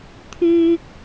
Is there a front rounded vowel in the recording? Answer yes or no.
yes